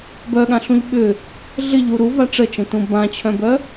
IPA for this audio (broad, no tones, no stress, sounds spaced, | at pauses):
b œ ɠ ã ɬ ũ ʎ ɓ ʏ | ɮ ɪ ʎ u ɾ u v a ʈ͡ʂ ə t͡ʃ ə̃ t ũ b ã t͡ɕʰ œ̃ b œ